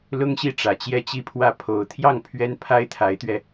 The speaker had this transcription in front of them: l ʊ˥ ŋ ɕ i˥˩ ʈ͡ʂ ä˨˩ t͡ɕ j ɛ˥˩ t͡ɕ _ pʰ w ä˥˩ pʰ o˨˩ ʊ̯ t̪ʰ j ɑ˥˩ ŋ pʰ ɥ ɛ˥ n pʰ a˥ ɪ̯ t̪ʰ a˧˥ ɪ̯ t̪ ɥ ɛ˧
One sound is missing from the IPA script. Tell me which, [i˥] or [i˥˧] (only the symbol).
i˥